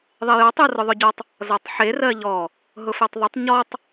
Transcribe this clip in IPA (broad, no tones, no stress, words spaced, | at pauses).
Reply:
ðˤejɔtˤ ɜrʊðˤʊɟɒtˤ | zɒtˤħe rɜʎɔ | ɦʊfɛtˤðˤʊtˤ ɲɔtˤ